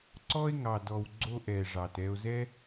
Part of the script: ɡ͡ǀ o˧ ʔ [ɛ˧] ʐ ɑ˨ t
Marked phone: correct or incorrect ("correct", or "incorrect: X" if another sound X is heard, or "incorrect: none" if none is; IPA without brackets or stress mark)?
incorrect: ɛ˨